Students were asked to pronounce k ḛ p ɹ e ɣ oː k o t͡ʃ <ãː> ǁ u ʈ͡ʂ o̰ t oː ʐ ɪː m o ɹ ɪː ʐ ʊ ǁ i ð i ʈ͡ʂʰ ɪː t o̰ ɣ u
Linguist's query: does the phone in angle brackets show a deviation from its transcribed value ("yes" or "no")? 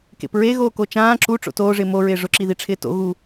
no